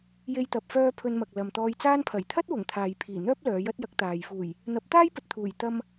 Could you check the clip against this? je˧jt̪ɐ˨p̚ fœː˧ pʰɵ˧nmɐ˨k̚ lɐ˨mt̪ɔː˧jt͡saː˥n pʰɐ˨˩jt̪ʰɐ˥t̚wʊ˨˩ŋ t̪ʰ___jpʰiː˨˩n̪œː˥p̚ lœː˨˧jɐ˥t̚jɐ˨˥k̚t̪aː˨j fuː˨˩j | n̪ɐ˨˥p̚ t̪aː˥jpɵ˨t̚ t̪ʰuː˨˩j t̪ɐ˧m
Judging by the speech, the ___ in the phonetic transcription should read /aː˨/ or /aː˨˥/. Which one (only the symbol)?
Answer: aː˨